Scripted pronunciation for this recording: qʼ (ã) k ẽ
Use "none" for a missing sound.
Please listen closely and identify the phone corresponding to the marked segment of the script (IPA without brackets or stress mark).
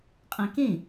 ã